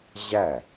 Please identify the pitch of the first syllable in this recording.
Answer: falling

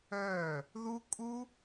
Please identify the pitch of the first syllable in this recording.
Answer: falling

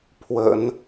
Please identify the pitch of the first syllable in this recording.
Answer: low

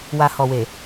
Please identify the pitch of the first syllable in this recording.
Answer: low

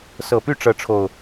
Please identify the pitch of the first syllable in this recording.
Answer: low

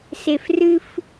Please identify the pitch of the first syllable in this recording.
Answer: low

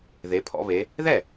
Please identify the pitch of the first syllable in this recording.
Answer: rising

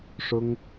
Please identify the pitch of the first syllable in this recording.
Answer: high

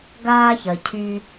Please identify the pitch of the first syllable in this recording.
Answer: high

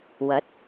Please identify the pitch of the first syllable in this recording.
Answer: rising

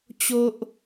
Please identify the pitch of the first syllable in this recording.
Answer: high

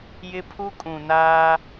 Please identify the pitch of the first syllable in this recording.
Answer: high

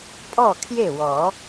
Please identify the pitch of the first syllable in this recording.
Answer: falling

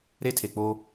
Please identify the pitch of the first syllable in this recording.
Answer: high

